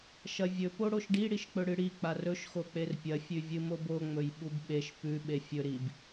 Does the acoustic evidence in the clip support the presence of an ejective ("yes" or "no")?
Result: no